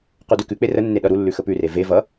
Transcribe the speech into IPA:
qudʉkʉk͡pe rənːe ɗʌɾulːʉ xəpʉre ve vʌ

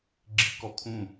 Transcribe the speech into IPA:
ɡ͡ǁḭkɔkʰũ

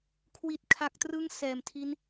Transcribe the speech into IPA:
kʰwi˨˩t̚kʰa˨˩k̚trɯ˦˥ŋ sɛː˨˩mtʰi˦˥n

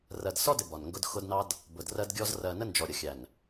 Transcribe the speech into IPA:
rɜ˨dsɔ˦dɪ˨ bɒ˨nŋɡʊ˦d xʊ˦dnɑ˦d | bʊ˨drɜ˦dɡʲɔ˦z rɜ˨nə˦ nd͡ʒɔ˨ɾʲʌ˨ xʲæ˨n

